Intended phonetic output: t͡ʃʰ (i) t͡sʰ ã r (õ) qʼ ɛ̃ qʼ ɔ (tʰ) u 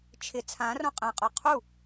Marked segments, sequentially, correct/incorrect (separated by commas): incorrect, correct, incorrect